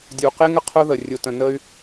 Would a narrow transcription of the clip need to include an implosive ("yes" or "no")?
no